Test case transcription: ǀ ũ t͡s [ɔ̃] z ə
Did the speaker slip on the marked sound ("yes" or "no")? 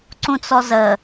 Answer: yes